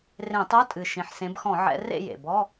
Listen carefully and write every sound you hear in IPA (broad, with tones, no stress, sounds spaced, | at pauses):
r ẽ˧˩˧ tˤ o˧˥˧ tʼ ɨ˨˩ ʃ ĩ˨˩ ħ s ẽ˨˦ b x ɔ̃˧˩˧ ʕ ɛ̰˨˦ r ḛ˥˨ j ḛ˨˩ b ɔ˧˥˧